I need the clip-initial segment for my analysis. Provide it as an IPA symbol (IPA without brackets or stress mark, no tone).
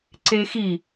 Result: ǀ